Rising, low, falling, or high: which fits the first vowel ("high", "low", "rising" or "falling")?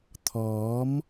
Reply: rising